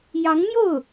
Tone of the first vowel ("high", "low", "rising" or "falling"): rising